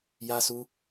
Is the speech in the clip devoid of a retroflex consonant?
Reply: yes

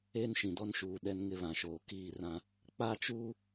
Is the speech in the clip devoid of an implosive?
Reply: no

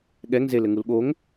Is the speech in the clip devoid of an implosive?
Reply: no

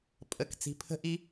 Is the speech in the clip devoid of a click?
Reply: yes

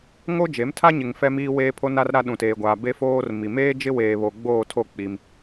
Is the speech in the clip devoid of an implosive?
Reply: no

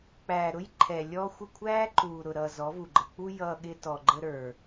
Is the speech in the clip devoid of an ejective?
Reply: yes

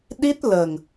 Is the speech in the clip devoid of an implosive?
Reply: no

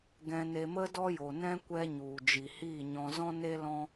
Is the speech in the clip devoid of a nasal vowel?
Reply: no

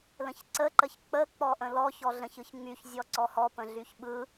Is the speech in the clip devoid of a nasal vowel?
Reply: no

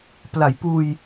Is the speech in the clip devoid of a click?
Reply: yes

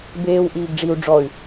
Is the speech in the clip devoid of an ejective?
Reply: yes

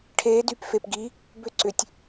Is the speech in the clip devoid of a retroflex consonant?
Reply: no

